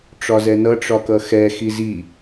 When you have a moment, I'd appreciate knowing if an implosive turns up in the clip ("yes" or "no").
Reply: no